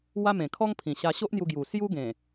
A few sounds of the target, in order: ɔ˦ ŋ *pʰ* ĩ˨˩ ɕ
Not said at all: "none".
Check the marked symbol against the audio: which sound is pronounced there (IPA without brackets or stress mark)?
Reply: pʰ